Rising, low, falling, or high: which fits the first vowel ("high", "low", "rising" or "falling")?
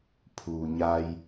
low